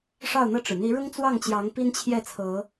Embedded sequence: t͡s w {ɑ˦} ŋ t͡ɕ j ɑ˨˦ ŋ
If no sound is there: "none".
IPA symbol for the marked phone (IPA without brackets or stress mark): ɑ˥˨